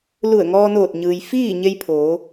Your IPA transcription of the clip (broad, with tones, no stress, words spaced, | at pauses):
lu˧˩ə̯ŋɔː˧noː˧˩t̚ɲɯː˩j fiː˥˨ɲe˧j pʰoː˩˧